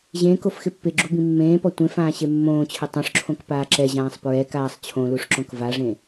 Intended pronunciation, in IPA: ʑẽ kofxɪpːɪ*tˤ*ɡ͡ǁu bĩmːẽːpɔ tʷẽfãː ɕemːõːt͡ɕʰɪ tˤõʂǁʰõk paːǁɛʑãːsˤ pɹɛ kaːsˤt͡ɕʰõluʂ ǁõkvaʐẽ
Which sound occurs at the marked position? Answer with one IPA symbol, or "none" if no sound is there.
none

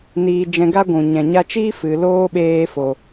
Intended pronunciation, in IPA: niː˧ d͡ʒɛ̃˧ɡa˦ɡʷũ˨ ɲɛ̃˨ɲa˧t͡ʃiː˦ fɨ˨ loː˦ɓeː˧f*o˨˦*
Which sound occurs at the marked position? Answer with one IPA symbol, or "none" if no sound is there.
o˨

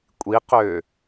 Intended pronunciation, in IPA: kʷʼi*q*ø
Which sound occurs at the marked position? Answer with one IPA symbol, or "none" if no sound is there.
q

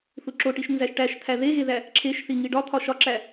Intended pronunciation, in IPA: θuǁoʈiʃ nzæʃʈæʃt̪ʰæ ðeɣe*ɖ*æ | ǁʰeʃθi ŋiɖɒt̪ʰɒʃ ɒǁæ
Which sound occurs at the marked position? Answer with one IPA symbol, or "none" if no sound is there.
ð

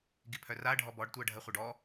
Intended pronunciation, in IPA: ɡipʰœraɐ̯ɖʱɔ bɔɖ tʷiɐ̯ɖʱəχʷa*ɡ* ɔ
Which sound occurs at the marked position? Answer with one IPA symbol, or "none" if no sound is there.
ɖ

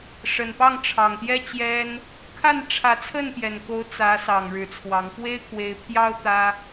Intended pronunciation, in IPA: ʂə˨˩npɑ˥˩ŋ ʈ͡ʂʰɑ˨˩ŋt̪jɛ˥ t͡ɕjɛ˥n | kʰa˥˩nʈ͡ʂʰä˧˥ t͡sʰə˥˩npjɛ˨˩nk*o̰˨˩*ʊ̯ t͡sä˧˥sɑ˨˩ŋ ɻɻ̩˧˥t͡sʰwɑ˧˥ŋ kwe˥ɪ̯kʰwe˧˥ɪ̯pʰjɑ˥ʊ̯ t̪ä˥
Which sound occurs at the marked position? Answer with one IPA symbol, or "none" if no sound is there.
o˧˥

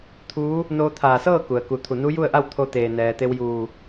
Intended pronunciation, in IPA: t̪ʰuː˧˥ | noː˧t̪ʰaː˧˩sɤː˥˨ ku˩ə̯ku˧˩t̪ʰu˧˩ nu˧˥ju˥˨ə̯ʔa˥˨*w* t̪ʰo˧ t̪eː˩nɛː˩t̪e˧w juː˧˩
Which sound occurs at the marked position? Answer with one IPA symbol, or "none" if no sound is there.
w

